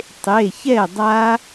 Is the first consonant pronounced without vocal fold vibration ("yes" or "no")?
yes